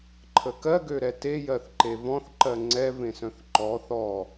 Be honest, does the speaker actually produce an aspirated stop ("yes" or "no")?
yes